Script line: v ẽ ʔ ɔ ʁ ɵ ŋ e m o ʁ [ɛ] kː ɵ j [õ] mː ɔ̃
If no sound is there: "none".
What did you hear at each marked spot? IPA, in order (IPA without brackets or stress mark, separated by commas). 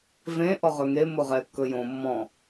ɛ, õ